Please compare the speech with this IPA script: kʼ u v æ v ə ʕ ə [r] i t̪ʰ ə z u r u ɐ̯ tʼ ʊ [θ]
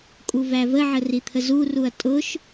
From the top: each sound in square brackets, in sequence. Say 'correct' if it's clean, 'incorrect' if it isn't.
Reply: correct, incorrect: ʃ

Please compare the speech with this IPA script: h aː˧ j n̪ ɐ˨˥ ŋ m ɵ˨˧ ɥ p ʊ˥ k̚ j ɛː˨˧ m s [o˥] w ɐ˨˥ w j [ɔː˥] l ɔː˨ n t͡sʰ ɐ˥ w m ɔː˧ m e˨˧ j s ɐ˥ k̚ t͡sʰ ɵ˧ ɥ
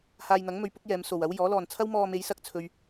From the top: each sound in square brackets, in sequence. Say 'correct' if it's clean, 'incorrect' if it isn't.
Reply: incorrect: o˨, incorrect: ɔː˨˥

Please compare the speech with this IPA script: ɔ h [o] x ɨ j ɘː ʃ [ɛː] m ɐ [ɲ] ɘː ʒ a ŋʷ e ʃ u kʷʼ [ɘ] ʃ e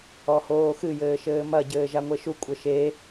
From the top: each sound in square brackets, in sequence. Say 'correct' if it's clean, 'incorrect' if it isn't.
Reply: incorrect: oː, incorrect: ɘː, incorrect: ɟ, correct

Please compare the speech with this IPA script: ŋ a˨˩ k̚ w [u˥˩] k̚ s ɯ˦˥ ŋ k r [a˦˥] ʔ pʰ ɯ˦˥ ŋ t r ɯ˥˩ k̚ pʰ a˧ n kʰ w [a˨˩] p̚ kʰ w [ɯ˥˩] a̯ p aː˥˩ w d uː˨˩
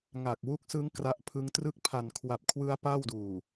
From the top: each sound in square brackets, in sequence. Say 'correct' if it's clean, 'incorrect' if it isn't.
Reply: incorrect: u˦˥, correct, correct, incorrect: ɯ˦˥

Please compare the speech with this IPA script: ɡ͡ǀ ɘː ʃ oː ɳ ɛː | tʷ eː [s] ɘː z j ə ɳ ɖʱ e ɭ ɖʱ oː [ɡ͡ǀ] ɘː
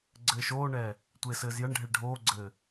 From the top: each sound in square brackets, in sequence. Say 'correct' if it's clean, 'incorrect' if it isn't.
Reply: correct, correct

